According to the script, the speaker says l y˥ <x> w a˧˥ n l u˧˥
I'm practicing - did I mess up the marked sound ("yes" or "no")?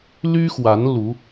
no